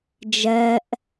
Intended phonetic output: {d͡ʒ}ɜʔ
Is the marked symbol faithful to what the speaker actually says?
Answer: yes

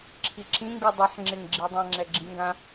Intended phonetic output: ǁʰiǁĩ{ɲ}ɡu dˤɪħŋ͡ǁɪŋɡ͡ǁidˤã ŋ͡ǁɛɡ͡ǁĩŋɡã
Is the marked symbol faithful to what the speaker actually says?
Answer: no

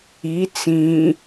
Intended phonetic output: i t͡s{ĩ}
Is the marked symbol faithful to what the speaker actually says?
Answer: yes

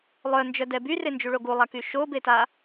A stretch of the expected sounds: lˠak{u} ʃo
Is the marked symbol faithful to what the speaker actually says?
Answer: no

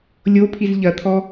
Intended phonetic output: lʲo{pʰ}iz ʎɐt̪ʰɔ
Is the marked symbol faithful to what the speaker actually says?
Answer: yes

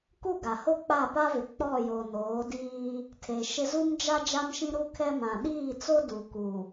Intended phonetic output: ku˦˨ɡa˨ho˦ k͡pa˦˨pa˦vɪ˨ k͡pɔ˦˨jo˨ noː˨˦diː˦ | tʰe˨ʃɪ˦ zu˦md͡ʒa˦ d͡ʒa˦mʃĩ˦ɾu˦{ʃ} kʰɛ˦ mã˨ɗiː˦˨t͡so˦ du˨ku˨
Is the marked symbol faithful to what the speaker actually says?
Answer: no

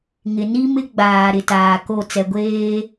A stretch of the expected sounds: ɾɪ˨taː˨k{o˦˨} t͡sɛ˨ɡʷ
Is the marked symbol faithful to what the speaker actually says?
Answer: yes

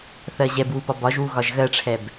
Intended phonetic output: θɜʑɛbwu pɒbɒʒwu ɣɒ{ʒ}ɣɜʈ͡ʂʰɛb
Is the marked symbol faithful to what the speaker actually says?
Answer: yes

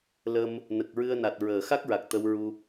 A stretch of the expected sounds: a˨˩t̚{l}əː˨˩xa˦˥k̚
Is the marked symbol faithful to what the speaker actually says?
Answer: no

